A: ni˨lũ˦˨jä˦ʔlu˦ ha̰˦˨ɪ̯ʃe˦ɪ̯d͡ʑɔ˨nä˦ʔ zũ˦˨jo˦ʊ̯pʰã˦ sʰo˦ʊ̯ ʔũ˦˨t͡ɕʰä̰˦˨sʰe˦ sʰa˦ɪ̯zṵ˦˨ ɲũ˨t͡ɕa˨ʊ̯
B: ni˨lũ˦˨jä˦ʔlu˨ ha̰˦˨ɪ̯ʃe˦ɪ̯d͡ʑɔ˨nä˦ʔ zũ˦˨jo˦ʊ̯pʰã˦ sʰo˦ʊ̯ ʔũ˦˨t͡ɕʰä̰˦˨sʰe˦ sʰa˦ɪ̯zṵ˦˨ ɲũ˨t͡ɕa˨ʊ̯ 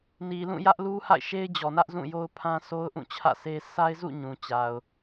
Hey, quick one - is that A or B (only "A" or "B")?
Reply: A